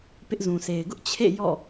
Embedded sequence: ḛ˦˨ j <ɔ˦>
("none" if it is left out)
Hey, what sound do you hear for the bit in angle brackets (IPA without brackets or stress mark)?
ɔ̰˦˨